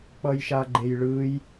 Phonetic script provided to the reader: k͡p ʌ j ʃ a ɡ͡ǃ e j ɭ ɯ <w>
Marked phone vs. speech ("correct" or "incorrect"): incorrect